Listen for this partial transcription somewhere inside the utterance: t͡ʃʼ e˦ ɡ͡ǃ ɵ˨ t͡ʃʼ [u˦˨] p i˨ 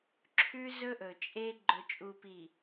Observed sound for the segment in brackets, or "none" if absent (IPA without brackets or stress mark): u˨